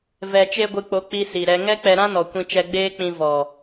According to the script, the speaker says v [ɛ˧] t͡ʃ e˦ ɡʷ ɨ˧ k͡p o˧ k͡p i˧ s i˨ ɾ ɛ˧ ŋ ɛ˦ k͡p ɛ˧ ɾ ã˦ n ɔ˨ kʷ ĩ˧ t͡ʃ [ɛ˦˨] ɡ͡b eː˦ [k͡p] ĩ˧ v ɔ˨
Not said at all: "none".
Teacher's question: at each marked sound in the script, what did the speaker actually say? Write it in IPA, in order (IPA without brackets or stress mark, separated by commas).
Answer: ɛ˨, ɛ˧, k͡p